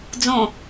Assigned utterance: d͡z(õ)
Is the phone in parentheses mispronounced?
no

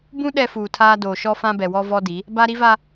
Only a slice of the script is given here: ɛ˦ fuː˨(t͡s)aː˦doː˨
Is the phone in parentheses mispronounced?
yes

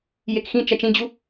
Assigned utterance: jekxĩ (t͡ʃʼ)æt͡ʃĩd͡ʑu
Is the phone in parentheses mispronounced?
yes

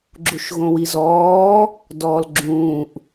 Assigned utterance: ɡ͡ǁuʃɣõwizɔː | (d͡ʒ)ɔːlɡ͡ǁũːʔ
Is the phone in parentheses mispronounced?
yes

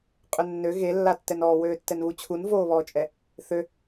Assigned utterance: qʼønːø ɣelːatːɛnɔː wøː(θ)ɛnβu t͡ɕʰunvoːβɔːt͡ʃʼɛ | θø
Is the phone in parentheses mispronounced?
yes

